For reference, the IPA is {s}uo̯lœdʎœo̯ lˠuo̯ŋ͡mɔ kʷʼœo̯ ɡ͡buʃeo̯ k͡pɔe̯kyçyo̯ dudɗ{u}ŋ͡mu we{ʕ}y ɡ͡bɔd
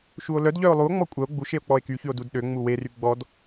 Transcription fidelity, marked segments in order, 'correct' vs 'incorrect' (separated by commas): incorrect, incorrect, incorrect